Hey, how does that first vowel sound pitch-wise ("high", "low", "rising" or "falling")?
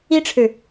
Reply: high